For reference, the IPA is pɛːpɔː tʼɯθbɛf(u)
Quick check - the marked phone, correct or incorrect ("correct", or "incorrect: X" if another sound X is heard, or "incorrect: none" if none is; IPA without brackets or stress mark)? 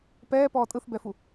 correct